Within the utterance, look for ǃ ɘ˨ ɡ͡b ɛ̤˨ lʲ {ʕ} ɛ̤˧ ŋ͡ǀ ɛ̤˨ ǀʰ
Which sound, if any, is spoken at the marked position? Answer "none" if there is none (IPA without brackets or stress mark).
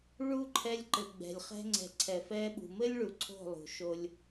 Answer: χ